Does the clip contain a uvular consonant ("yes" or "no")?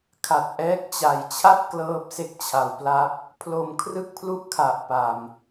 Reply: no